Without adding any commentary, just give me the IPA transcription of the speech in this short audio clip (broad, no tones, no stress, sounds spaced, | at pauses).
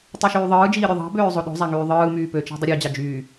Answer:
tˤ u ʃ yː ðˤ ɯː d͡ʒ iː ɾʲ o ðˤ ɑ̤ b øː zˤ o ɗ o̤ zˤ æ ŋ yː ðˤ ɯː m yː p ø t͡ʃ æ̤ dˤ i ɾʲ ø d͡ʑ ɑ d͡ʒ yː